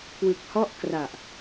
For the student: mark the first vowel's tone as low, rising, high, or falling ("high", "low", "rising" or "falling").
low